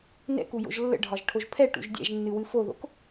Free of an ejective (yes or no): yes